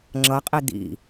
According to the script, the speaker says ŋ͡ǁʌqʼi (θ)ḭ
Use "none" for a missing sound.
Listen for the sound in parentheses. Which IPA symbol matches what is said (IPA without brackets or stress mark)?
d̪